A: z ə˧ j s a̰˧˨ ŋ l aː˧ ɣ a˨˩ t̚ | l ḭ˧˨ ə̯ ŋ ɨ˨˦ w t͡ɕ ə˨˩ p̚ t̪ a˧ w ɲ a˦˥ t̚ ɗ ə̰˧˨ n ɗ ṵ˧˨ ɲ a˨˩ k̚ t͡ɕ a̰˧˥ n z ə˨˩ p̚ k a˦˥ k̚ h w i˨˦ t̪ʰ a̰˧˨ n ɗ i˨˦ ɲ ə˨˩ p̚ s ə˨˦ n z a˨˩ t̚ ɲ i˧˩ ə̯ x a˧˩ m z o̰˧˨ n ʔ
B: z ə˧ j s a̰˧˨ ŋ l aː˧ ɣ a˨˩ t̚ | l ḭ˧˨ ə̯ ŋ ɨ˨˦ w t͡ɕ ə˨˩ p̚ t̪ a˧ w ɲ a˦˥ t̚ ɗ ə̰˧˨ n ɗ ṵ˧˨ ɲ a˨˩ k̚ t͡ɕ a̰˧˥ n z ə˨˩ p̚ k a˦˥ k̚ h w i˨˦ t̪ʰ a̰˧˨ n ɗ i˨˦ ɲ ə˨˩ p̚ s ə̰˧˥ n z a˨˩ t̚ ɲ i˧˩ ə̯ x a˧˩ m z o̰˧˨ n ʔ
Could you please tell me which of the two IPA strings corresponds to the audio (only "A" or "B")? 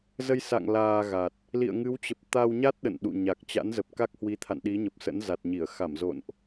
B